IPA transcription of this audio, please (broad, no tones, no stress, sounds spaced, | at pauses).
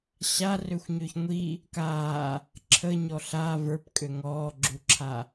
ɕ a r ø xʷ ɲ ø ç ŋʷ i | k aː | ǁʰ ə ɲ ɔ ɬ a v ə˞ p kʼ ø ŋ ɔː ɡ͡ǁ u ǁʰ a